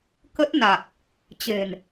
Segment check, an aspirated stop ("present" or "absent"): absent